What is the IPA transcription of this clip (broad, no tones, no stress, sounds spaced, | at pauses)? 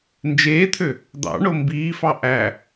n d͡ʒ eː t̪ʰ ø | d̪ ɑ̰ ɳ o m b iː f ɑ ʔ æ